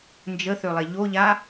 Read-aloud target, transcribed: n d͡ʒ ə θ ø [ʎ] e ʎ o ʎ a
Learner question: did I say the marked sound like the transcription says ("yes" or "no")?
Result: no